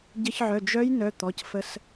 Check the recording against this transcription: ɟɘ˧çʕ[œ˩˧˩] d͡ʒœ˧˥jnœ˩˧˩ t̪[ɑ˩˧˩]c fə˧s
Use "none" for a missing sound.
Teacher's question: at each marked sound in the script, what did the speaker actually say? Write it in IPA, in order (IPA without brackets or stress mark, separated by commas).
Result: œ˩˧˩, ɔ˩˧˩